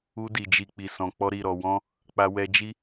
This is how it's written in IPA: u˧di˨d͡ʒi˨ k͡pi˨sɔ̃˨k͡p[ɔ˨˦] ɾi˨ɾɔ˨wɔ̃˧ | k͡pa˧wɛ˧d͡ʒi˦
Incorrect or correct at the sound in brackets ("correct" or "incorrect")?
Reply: incorrect